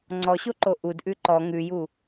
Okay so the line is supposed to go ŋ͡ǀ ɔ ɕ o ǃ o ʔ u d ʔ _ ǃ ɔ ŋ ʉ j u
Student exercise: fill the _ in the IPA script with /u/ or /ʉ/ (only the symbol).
ʉ